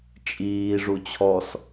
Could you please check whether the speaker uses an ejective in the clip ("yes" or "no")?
yes